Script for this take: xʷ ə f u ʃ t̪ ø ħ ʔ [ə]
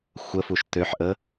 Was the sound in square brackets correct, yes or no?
yes